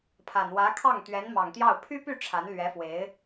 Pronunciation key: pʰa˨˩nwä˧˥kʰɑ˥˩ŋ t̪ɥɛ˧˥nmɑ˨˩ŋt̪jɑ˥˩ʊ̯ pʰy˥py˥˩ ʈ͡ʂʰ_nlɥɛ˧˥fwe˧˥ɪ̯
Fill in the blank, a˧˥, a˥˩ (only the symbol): a˧˥